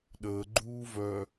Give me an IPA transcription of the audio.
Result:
ɗ əː ɡ͡ǃ uː v œ

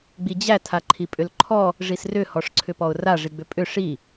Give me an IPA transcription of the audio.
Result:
ɡ͡b i d͡ʑ æ tʰ a ǃʰ i pʼ ʏ l ǃʰ ɔ | ʐ i s r ʏ h ɔ ʂ ǀʰ ʏ p ɔ ʊ̯ r a ʐ i ɡ͡b ʏ pʼ ʏ ʂ i

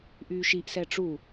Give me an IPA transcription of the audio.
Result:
ʔ yː ʃ i ʔ s ɛ ʈ͡ʂ u

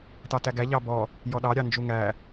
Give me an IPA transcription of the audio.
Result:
t ɑ t æ ɡ æ ʎ ɑ b ɔ | j ɔ ɗ ɑ ɾʲ ɑ n d͡ʒ u ŋ æ

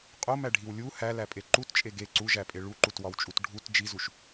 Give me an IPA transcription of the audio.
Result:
qʼ o m æ ɖʱ i w lʲ u h æ l æ pʼ e ǃ u t t͡ʃʼ e ɡ e ǀ u ʒ æ pʼ e ɭ u ǃ u t w ɒ w t͡ʃʼ u t ɖʱ u t d͡ʒ i z u ʃ

